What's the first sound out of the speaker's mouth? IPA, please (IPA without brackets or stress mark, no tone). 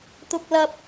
t̪